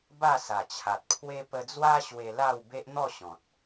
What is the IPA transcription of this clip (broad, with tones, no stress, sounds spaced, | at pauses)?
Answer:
b a˥˧ s a˨˩ t͡ɕʰ a˨ t̚ pʰ w e˦ p ə˧ d͡z w a˦ ɕ w e˧ l a˥˧ w b e˦ ʔ n̪ ɔ˥˧ ɕ ɔ̃˨ t̚